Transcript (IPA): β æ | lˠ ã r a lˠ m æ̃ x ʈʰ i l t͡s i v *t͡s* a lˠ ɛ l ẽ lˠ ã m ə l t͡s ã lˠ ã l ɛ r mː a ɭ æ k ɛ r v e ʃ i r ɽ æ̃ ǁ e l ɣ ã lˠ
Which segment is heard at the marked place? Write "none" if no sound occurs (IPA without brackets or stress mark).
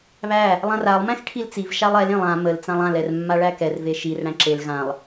ʃ